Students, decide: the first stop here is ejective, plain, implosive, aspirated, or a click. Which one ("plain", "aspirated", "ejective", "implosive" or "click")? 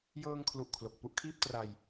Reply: aspirated